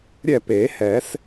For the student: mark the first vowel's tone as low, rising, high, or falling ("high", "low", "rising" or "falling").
falling